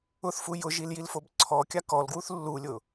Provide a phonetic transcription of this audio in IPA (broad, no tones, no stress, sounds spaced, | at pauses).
ʊ θ f u j ʊ ʒ i l j i l f o b ǀʰ ɔ kʲ a k ɔ l ɡ w u θ lː u lʲ ʊ